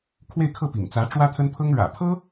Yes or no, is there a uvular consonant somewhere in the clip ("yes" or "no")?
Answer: no